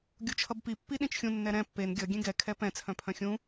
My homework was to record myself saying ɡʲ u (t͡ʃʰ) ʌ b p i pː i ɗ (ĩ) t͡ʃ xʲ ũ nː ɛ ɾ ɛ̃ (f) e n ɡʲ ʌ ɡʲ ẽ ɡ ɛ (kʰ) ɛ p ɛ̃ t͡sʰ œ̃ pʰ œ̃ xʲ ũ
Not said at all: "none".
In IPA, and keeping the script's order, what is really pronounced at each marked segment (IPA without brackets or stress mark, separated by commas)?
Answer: t͡ʃʰ, ĩ, pː, kʰ